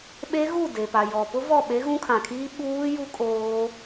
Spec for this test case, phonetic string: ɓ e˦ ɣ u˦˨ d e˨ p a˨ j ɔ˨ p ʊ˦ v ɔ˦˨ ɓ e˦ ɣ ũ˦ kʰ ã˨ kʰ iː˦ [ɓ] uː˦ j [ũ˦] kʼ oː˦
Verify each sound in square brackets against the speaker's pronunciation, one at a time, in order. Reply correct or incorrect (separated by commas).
correct, incorrect